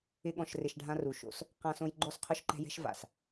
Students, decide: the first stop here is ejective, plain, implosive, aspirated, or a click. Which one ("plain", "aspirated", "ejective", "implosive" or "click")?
implosive